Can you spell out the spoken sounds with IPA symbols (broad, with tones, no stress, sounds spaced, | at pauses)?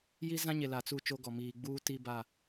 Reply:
j i˦ z ã˦ ɲ e˨ l a˨ t͡s u˦˨ t͡ʃ o˦ ɡ ɔ˨ m iː˨ ɡ͡b uː˦ t i˦ b a˦˨